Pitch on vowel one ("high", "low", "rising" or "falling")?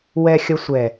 low